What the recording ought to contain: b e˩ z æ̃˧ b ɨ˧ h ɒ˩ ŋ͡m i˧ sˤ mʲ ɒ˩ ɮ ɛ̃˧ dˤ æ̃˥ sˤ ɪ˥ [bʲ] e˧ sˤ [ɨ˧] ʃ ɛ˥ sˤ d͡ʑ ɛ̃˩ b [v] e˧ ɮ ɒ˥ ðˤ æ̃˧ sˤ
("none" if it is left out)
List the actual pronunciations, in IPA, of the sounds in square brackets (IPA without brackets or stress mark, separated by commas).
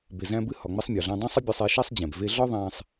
bʲ, e˧, v